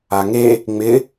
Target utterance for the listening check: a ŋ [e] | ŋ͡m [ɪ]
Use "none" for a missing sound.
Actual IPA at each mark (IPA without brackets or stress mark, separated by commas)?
e, ɪ